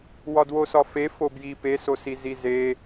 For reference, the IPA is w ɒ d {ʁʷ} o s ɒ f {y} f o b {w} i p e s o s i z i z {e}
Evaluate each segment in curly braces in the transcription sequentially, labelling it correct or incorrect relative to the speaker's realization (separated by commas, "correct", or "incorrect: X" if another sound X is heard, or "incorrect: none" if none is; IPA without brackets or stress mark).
incorrect: w, incorrect: e, incorrect: j, correct